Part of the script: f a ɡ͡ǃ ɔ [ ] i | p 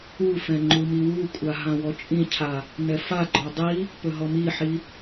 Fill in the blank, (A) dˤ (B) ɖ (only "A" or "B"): A